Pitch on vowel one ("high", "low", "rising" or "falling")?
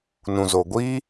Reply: low